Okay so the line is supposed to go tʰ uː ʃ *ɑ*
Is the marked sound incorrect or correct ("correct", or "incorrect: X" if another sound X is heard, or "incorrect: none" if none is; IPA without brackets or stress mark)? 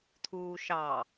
correct